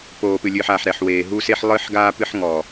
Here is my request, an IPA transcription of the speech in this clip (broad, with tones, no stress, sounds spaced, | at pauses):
p oː˨ p ɨ˨ lʲ ɨː˨ ħ aː˨ ħ ɾ ɛ˨ ħ w eː˨ ɦ u˦ s e˦ ħ lˠ ɨː˦ ħ ɡ aː˦ p ɨ˦ ħ ŋ ɔ˨